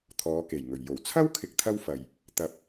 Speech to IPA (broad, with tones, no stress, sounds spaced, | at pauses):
t̪ʰ ɔː˨˧ k e˨˩ j ŋ ɵ˨˩ ɥ j o˨˩ w t͡sʰ ɐ˥ w kʰ ɪ˨ k̚ t̪ʰ ɐ˥ w f ɐ˨ j | t̪ ɐ˧ p̚